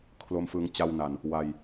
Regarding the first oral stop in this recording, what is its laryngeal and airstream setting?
aspirated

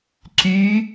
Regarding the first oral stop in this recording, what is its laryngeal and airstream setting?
click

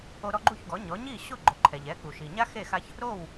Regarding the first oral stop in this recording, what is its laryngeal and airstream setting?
click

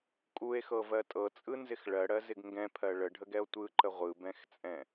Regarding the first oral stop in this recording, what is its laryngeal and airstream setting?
ejective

